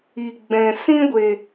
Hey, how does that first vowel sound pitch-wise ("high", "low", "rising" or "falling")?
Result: low